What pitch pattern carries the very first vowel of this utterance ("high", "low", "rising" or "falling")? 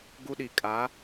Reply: high